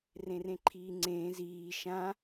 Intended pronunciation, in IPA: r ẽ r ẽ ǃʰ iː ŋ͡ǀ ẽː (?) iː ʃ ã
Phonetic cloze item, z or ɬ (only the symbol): z